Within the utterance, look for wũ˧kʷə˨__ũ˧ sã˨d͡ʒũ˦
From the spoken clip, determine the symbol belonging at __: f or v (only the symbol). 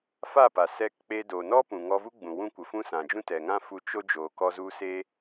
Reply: f